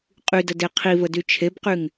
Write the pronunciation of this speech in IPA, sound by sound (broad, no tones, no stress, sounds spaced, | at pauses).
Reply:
qʼ y d ə d e qʰ i v ə d y t͡ʃʰ e b q y ŋ